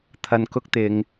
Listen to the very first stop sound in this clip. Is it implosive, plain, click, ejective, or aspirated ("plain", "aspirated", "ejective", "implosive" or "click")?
aspirated